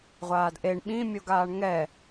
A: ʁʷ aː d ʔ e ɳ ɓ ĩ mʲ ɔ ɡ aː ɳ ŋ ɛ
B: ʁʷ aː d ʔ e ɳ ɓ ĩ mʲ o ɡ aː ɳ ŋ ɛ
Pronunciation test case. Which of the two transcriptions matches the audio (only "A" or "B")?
B